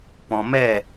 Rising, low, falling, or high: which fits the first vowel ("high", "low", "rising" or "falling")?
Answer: low